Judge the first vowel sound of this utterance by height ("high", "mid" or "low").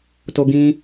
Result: mid